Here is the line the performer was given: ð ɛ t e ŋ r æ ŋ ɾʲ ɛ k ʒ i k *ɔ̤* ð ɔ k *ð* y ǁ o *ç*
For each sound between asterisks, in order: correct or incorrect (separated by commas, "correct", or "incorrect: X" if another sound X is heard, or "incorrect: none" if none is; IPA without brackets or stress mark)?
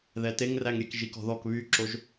correct, incorrect: β, incorrect: ʒ